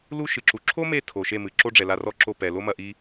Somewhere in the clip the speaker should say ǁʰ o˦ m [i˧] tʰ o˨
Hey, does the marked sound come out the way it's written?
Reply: no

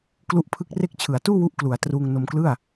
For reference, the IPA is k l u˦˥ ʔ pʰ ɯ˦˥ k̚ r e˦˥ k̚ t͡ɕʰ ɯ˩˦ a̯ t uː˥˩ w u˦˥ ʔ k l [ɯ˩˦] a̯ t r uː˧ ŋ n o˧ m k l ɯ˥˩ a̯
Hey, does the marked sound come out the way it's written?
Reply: no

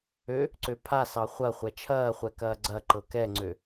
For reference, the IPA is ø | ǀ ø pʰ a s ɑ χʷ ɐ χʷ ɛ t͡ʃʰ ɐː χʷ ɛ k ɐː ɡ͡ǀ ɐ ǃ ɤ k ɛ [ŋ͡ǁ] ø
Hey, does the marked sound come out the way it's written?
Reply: no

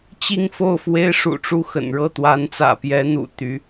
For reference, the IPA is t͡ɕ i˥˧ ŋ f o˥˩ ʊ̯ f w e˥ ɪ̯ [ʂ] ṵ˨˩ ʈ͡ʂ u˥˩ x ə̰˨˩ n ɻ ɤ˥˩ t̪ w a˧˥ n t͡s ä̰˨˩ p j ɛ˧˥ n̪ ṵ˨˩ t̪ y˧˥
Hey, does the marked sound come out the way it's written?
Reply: yes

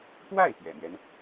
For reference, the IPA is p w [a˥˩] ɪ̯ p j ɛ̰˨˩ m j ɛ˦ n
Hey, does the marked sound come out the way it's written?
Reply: yes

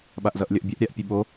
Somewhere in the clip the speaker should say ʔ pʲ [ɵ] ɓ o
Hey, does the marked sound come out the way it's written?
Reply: yes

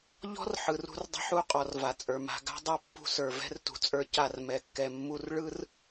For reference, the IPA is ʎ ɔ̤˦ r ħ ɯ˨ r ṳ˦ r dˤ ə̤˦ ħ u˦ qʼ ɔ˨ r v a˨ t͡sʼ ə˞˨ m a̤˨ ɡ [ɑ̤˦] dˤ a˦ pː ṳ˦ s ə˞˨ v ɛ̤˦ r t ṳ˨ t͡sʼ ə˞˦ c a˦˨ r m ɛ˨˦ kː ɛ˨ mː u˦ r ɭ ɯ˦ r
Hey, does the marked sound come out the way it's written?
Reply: no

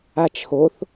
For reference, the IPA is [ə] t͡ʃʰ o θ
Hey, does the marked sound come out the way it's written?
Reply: no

